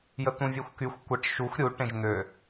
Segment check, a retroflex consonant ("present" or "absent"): present